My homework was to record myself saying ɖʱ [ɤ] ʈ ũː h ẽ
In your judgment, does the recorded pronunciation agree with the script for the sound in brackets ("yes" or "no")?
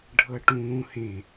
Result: yes